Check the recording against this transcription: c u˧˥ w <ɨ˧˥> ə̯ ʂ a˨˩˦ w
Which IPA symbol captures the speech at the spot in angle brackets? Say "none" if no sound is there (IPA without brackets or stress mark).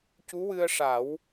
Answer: ɨ˧